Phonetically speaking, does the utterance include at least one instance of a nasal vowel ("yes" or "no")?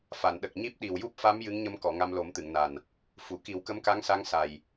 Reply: no